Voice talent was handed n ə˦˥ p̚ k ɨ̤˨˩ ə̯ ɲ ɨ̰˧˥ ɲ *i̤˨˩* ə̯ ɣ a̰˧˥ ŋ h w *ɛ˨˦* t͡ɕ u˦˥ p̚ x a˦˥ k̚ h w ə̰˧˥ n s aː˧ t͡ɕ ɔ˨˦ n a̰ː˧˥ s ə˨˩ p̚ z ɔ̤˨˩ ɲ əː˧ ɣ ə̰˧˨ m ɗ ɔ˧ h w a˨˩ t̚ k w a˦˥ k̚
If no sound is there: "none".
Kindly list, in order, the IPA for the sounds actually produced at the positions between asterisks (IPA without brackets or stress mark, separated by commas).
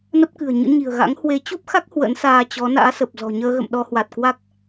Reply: i̤˨˩, e˨˦